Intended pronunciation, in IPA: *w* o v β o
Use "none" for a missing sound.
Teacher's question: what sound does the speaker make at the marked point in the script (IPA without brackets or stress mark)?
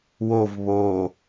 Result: w